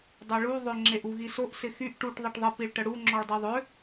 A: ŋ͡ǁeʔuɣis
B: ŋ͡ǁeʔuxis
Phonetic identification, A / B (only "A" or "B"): A